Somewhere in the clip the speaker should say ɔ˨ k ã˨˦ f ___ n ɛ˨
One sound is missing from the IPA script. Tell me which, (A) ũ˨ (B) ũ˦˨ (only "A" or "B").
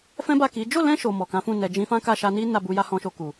B